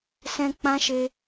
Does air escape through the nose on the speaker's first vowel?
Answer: yes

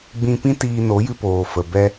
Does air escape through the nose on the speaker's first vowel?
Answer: yes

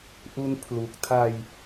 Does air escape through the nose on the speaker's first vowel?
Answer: no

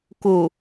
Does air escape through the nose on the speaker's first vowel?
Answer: no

